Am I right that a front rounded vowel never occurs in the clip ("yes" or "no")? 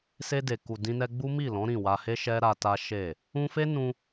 yes